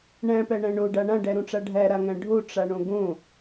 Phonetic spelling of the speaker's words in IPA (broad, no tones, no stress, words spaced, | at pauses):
ɳæ̃pæɳæ̃ ɳoɖa ɳãɖæɾõʈ͡ʂa ɖʱæɾaŋæ̃ ɖʱoʈ͡ʂaɳõ ɡõ